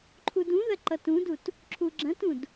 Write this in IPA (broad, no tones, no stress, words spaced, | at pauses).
ǃʰudũðɐ ǃʌtũdut | ǁʰuɡ͡ǁɐ̃tũd